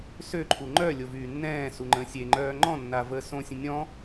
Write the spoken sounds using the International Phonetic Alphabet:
sø ǃʰuŋ͡ǃœlʲo vyːnːɛ̃ːsu ŋ͡ǃə̃ːsʲeŋ͡ǃœː ŋ͡ǃɔ̃nːa vəːsõsʲə̃ nʲɔ̃

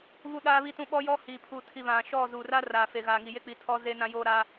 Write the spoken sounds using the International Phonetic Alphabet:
βu˦ɗaː˦βi˦tũ˦ ɓɔ˦jɔ˦ hiː˨ pʰuː˨tʰi˨ βã˨ʃɔ˦˨zu˨ra˦ raː˨fe˨ɣaː˨ŋi˨ je˦k͡pi˨tʰɔ˦ zeː˦nã˦joː˦ɾa˦

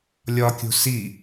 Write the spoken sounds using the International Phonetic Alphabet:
lʲɒkʲṳ si

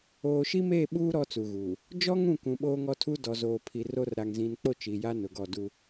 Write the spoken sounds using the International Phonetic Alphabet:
oː˨ ʃi˦meː˦˨ɓuː˦ ɾɔ˦t͡su˨ɣuː˨ | d͡ʒɔ˦ŋũ˦˨kũ˨ ɓoː˦ŋɔ˦tʰu˦ dɔ˨zoː˨pʰi˨ro˦r ɾa˨ŋzĩ˨nk͡po˦˨ t͡ʃi˨ja˦ nʊ˨ɡɔ˦˨ du˦

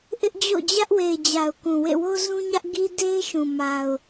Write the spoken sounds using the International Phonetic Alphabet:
ʔɪ˦ʔd͡ʑo̰˦˨d͡ʑä˦ʔ we˨ɪ̯d͡ʑa˨ʊ̯ kũ˨wḛ˦˨wo˦ zũ˦ɲä˦ʔ ɡi˦de˦ɪ̯ʃũ˨ ma˨ʊ̯

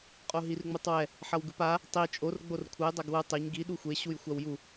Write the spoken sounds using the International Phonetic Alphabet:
qʼoɦirŋ͡mutˤwɛ | ħʌwɡɯpa | tˤi t͡ʃʼor ɡ͡borkʷʰʌj dˤaɡwɯ tˤeɲ ɡi ɗuxʷe ɕujxʷawju

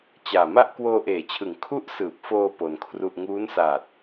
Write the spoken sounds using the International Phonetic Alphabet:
t͡ɕaː˨˩ma˥˩ʔ kwoː˧ʔeː˩˦t͡ɕʰɯ˩˦ŋ kʰu˦˥ʔsɯː˨˩p̚foː˧ po˧nkʰru˥˩ʔ ŋuː˦˥nsaː˨˩t̚

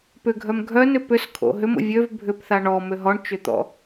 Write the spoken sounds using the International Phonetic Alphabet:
pʏɡʱœm ɡʱœnʏ pʏskʰo̰ ɦʏmo̰ vʲøv bʱʏpθa ɳɔmʏ ɦɔɳt͡ʃʏt̪ɔ̰

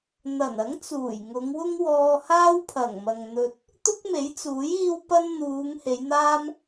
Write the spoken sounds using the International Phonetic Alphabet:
n̪ɐ˨˩nɐ˨˥ŋ t͡suː˨˩jŋʊ˨˧ŋwʊ˥ŋwɔː˧ haː˥wpʰɐ˨˩ŋ mɐ˨ŋn̪ɵ˧t̚ | t̪ʊ˥k̚me˨˥jt͡suː˨˥j iː˥wpɐ˥n n̪uː˨˧ŋ he˨˧jn̪aː˥m

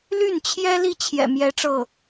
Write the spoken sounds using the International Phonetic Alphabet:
ly˥˩nt͡ɕʰjɛ˥li˥˩ t͡ɕʰjɛ̰˨˩mjɛ˧˥ʈ͡ʂɤ˥˩

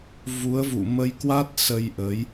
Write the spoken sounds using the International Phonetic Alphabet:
vu˨˦ə̯ vṵ˧˨mə˧j kwa˦˥t̚sə˧jʔəː˨˦j

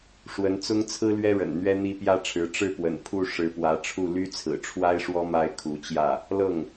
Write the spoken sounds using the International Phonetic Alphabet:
ʂwə˧˥nt͡sʊ˥ŋ t͡sʰɹ̩˥lɥɛ˥ɻə̰˨˩n n̪ɥɛ˥n̪i˥pjä˥ʈ͡ʂʰɻ̩˧˥ ʈ͡ʂɻ̩˥˩pwə̰˨˩n pʰu˥˩ ʂɻ̩˧˥pwä˧˥ʈ͡ʂʰu˥˩ ly˥t͡sʰɹ̩˨˩ʈ͡ʂʰwa˥ɪ̯ʂwɔ˥ ma˥ɪ̯kʰu˧˥t͡ɕjä˥˩ | lɤ˥˩ŋ

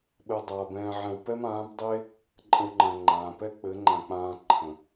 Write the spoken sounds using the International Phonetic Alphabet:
ɓɘ˧dˤaː˨bɛ̃ː˧ʕɛ̃˧w pɛ˦mãː˨˦bdˤɘ˦e̯ | ǃʼə̃˧wŋ͡ǃã˨ ŋ͡ǃãː˨pɛ˦ k͡pɘ˨˦ŋ͡ǃã˨k͡pãː˧ ǃʰə̃˨

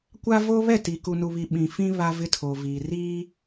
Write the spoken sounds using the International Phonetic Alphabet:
kʷa˦vo˦ βɛ˦˨ti˨ ku˨nu˨βi˨ ɓĩ˨fĩ˦ βa˦vɪ˦tʰo˨viː˨ riː˦

